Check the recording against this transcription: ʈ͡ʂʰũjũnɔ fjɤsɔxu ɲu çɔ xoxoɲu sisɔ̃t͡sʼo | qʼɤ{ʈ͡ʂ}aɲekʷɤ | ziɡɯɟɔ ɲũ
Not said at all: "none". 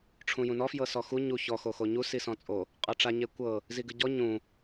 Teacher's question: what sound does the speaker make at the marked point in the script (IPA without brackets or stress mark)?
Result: ʈ͡ʂ